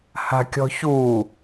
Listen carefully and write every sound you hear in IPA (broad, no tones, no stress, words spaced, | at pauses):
ha̤kʲɔ̤çu